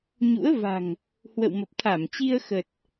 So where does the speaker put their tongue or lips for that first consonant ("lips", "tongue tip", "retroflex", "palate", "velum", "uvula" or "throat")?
palate